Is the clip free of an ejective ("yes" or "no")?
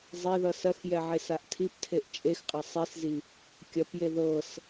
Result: no